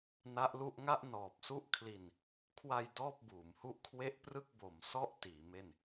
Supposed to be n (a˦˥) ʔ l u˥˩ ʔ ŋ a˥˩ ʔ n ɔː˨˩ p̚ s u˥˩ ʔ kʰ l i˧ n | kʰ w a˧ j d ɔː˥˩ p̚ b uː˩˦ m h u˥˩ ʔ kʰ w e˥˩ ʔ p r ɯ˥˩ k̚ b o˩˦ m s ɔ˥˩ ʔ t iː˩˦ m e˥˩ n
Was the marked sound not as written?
no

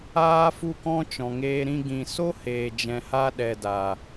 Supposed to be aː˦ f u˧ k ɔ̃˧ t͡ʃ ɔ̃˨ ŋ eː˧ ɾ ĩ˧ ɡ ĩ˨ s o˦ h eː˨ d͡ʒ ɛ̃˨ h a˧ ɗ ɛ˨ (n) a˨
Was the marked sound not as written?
yes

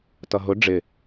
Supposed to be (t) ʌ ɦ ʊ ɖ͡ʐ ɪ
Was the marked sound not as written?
no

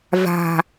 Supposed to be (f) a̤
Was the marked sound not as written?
yes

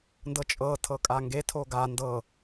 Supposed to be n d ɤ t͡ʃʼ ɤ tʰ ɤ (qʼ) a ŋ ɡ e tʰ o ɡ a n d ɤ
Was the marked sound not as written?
yes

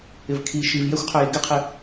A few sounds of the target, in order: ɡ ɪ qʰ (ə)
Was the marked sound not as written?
yes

